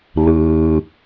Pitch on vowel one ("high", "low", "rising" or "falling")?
low